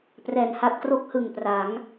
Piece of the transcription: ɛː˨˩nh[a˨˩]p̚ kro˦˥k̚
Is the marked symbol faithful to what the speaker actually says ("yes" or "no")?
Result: no